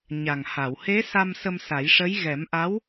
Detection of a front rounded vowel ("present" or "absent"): absent